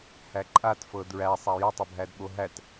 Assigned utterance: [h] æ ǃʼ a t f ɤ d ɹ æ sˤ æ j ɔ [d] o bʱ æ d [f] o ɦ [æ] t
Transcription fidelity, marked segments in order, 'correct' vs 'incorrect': correct, incorrect, incorrect, correct

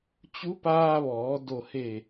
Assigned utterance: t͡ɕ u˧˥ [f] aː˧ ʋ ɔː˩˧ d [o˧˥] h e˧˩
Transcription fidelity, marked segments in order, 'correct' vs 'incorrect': incorrect, incorrect

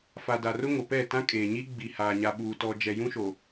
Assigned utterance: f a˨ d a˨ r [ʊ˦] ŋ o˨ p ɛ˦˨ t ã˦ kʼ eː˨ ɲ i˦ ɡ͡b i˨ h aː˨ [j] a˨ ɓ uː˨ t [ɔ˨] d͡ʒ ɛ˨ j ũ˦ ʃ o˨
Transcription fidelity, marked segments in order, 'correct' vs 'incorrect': correct, incorrect, correct

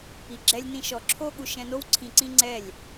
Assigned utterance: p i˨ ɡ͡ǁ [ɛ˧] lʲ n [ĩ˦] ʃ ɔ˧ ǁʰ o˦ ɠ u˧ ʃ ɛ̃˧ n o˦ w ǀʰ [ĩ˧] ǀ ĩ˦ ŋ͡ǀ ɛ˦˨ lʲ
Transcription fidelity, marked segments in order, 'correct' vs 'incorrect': correct, correct, correct

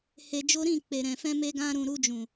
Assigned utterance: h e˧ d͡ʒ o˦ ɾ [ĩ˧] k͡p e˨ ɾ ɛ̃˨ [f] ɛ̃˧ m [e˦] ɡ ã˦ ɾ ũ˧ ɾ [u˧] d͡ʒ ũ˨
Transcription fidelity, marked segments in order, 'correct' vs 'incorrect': incorrect, correct, correct, correct

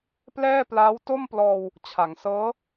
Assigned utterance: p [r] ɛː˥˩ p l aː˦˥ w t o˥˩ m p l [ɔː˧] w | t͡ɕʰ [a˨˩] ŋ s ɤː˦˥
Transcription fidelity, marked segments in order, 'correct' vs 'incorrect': incorrect, correct, incorrect

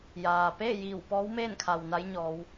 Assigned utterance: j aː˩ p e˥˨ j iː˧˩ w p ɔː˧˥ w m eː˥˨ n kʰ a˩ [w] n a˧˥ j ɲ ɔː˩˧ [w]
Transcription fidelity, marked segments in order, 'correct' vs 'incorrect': correct, correct

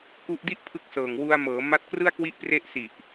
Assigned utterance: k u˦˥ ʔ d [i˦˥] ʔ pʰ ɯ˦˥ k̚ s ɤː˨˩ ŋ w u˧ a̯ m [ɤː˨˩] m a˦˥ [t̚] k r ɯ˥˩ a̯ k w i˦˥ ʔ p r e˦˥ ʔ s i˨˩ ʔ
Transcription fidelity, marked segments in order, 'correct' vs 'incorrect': incorrect, incorrect, correct

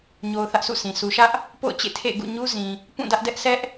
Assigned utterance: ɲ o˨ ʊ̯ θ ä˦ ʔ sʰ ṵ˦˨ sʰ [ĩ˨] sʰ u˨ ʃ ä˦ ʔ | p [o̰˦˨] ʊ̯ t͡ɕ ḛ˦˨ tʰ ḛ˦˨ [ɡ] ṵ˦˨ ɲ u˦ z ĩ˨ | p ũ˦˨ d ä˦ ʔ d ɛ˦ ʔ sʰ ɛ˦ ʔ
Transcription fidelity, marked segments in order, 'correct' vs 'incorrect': correct, correct, correct

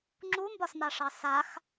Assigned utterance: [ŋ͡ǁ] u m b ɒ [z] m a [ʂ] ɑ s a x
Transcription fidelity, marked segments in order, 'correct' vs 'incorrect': correct, incorrect, correct

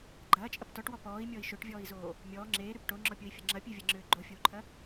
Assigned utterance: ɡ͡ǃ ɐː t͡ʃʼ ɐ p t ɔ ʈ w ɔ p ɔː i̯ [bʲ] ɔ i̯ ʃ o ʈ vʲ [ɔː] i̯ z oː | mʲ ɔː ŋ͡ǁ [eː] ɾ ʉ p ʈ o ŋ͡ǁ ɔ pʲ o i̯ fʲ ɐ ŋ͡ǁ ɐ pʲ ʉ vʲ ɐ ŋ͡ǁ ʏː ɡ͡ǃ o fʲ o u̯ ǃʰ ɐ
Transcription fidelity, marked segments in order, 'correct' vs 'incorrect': incorrect, correct, correct

